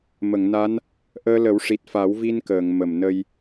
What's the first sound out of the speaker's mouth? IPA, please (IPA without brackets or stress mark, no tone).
m